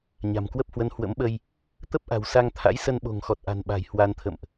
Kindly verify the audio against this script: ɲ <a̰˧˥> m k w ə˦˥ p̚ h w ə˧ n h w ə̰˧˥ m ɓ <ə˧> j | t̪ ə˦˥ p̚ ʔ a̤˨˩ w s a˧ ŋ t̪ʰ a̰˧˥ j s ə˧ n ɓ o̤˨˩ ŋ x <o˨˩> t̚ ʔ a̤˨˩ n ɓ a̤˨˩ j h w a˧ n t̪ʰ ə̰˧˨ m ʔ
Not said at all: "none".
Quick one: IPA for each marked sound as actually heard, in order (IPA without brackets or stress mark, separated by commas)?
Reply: a̤˨˩, ə˧, ɔ˨˩